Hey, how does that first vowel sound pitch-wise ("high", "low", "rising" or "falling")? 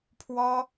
high